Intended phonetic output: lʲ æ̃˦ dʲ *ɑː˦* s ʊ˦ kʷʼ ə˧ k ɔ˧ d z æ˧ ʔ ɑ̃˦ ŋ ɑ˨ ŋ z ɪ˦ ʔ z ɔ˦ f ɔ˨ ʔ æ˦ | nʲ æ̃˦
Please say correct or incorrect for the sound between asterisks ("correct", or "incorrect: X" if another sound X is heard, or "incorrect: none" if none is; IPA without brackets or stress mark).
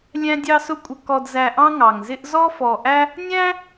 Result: incorrect: ɑ˦